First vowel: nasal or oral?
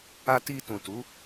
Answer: oral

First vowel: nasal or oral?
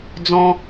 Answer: nasal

